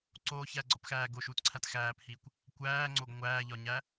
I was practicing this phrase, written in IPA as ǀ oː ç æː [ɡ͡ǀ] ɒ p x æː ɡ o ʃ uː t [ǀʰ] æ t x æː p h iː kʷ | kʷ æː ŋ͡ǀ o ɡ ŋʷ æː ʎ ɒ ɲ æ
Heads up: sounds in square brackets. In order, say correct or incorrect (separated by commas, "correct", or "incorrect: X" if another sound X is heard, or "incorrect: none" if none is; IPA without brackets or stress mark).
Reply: correct, correct